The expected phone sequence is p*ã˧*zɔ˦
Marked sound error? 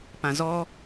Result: no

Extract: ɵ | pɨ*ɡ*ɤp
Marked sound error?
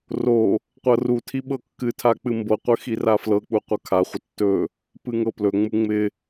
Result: yes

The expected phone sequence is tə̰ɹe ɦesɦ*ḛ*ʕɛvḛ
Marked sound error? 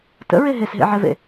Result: no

